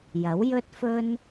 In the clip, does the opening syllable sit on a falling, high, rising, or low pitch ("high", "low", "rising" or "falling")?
rising